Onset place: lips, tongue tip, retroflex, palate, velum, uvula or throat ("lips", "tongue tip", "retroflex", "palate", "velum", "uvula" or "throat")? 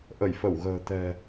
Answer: throat